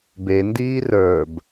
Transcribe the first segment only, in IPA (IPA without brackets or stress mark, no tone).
b